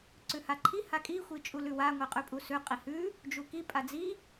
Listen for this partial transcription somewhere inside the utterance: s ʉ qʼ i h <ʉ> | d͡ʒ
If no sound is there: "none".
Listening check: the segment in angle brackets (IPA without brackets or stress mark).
ʉ